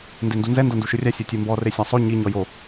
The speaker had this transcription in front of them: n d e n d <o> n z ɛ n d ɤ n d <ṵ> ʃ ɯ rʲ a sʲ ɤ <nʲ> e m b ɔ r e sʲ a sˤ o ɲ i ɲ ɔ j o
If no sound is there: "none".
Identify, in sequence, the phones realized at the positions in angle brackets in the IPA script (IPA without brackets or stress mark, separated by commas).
u, u, tʲ